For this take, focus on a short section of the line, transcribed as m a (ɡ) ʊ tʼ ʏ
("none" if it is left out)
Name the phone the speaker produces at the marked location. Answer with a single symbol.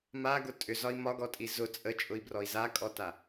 ɡ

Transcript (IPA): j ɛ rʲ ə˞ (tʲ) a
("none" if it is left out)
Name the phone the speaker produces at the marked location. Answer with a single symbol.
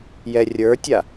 tʲ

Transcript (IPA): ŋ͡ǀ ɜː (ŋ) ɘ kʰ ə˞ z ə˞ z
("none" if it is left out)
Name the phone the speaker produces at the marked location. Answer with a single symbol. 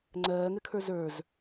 ŋ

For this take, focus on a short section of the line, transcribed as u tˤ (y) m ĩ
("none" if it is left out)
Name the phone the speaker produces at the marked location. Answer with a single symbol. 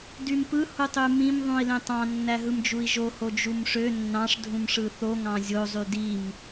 y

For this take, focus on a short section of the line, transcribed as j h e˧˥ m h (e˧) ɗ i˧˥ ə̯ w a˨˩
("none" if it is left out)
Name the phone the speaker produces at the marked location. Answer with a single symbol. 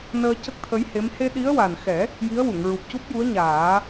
e˧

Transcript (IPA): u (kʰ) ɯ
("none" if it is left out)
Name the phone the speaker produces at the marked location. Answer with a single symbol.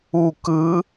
k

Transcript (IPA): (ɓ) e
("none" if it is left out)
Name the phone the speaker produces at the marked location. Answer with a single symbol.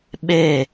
ɓ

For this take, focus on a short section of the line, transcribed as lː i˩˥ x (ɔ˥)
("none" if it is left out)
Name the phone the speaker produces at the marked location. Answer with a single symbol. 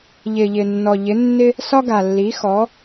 ɔ˩˥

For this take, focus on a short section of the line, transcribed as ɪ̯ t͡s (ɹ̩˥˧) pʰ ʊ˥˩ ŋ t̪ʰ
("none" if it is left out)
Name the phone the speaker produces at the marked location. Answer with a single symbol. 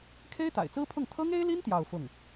ɹ̩˥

